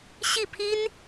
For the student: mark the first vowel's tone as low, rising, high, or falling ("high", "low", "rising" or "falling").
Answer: falling